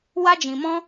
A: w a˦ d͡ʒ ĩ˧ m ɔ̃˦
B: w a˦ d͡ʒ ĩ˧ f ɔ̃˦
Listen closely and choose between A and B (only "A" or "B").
A